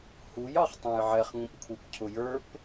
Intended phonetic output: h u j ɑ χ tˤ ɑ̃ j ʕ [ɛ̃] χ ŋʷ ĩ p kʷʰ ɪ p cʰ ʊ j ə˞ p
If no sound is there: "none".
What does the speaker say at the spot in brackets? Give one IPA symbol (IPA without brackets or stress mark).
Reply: ɛ